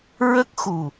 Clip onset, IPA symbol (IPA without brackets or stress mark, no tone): ɹ